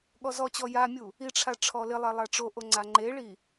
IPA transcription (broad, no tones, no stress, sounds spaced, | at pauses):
ɠ ɔ z ɔ t͡ɕ ɔ j a mʲ u | i ʈ͡ʂʰ a ʈ͡ʂʰ ɔ l ɪ lˠ ɛ lˠ a ʈ͡ʂ o ʔ o ŋ͡ǀ a ŋ͡ǃ e ɭ i